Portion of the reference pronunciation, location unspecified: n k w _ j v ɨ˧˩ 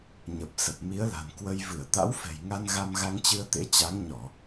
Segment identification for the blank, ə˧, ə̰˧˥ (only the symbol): ə˧